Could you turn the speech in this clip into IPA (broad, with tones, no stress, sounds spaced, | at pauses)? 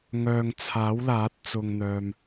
ŋ œː˨ ŋ t͡sʰ aː˨˥ w l aː˨˥ t̚ t͡s ʊ˧ ŋ n̪ œː˧ m